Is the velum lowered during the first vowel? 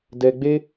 no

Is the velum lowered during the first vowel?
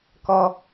no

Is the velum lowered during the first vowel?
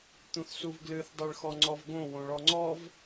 yes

